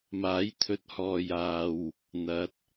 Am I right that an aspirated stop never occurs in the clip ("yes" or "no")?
no